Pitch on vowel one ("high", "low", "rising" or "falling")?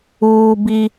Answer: high